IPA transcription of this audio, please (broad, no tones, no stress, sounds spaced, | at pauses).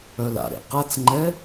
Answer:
œ l a̰ ɾ ḛ q a t͡s ŋ͡ǃ ɛ